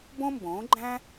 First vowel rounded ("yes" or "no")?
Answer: yes